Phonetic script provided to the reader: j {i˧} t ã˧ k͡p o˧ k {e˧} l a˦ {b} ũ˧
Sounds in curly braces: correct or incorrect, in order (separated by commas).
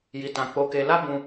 correct, correct, correct